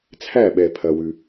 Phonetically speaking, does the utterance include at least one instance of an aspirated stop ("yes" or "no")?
yes